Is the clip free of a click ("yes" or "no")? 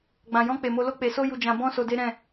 yes